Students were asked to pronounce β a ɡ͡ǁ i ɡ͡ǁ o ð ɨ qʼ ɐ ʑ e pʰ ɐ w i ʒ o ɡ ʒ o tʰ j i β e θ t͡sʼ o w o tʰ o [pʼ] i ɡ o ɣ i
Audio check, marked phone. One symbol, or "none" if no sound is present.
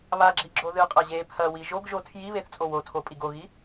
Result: pʼ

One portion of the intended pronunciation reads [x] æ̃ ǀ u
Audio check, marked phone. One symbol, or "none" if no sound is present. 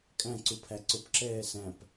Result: kʼ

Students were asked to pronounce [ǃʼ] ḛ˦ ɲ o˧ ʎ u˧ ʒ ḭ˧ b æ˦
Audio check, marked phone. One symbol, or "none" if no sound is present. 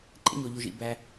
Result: ǃʼ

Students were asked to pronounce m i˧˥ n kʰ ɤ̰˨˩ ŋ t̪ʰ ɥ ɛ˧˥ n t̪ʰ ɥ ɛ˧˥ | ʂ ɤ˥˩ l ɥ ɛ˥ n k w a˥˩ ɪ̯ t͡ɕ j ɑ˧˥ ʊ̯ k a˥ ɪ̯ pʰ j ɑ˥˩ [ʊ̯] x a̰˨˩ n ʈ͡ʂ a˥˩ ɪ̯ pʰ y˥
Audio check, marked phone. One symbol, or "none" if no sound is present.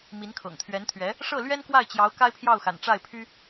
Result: ʊ̯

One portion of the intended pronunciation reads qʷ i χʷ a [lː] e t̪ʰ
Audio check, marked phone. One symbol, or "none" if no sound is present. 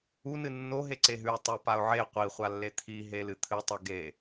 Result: lː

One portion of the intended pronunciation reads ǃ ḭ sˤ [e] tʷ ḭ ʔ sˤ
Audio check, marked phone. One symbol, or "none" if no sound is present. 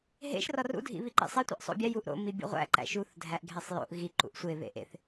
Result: e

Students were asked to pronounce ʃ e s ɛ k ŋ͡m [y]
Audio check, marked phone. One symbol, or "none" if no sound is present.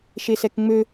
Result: ø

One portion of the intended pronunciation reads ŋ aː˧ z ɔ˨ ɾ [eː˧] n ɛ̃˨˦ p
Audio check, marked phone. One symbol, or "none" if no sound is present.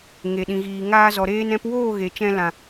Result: eː˧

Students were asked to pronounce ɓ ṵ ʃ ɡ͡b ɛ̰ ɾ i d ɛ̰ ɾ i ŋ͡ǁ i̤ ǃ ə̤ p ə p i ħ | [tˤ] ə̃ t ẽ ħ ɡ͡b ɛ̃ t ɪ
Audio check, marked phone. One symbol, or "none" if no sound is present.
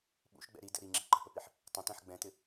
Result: tˤ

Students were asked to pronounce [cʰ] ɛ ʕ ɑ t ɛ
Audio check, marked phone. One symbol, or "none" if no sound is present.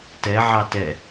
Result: t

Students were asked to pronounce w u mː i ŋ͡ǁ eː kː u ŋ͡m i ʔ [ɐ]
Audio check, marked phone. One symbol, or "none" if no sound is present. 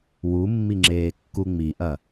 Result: ɐ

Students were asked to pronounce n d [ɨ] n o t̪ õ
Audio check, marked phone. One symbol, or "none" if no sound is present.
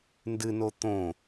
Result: ɨ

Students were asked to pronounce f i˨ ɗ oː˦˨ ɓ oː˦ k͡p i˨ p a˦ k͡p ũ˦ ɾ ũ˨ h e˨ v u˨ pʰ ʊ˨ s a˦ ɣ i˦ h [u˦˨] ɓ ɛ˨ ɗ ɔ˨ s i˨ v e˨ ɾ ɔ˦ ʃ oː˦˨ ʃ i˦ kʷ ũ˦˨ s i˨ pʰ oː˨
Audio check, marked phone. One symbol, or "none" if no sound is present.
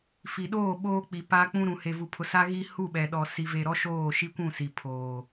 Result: u˦˨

